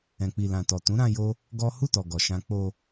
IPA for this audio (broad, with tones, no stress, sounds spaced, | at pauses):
ɛ̃˨ k͡p i˨ l ã˨ t ɔ˨ t ũ˨˦ ɾ ã˧ j o˦ | ɡ ɔ˦ h u˦˨ t ɔ˨ ɡ ɔ˨ ʃ ã˧ k͡p o˧